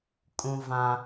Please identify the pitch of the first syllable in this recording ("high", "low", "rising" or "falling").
high